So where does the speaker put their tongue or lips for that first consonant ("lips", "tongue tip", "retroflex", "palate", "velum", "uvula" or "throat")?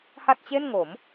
throat